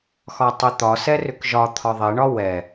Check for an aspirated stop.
present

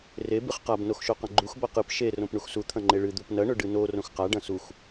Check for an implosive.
absent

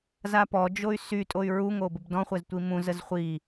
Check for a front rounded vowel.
present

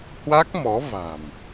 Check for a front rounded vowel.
absent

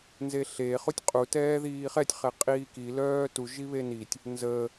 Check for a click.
absent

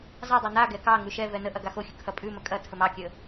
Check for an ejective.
present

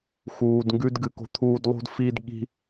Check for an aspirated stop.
present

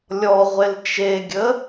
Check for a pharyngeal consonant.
absent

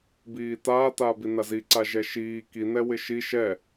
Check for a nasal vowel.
absent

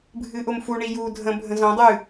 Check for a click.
absent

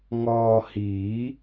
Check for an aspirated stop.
absent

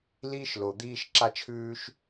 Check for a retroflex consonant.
absent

